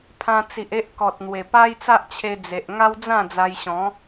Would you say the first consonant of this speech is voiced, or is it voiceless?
voiceless